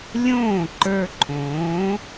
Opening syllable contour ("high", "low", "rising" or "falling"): falling